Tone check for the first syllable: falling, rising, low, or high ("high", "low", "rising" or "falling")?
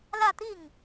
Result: falling